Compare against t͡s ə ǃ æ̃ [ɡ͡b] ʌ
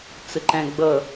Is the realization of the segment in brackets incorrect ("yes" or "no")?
no